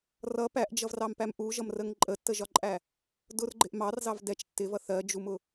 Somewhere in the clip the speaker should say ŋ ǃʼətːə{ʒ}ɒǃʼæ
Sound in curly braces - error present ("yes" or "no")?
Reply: no